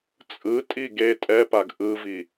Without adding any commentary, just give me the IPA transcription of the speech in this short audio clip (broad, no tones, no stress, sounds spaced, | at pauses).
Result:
t͡sʼ ɯ tʼ i ɡ e tʼ ɛ p a ɡ ʔ ɯ v i